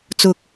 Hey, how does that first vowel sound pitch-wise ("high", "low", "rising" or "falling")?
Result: low